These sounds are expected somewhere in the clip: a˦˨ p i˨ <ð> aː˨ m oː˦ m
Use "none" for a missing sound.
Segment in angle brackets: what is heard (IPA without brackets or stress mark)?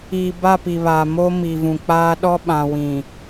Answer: β